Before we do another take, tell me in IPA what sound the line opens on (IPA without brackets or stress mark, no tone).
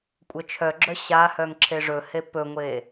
kʷʼ